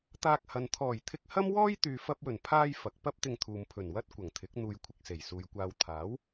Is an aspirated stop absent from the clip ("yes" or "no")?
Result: no